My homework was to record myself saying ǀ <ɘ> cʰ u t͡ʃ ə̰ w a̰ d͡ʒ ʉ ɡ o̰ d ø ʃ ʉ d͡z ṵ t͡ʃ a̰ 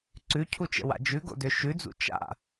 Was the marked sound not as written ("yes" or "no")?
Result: yes